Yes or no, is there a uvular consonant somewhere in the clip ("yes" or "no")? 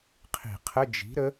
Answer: yes